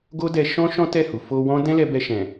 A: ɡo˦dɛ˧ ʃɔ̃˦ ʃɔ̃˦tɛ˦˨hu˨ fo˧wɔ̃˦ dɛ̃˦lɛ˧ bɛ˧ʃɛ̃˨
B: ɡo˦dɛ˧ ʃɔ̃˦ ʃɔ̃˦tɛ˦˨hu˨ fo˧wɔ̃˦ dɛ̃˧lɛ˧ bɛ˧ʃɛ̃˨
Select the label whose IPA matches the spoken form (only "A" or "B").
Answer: A